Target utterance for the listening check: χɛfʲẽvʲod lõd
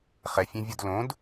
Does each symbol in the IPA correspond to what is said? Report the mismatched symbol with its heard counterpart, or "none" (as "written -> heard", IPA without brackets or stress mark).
none